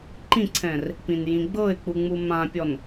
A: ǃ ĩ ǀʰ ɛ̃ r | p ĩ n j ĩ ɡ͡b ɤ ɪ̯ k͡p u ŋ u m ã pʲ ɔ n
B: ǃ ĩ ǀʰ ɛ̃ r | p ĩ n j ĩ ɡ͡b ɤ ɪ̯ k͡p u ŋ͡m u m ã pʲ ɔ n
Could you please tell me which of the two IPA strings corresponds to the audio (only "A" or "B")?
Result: B